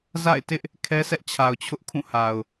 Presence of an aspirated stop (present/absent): present